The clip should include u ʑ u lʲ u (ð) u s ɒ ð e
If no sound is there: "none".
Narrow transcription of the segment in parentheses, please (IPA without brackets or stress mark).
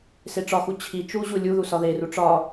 ð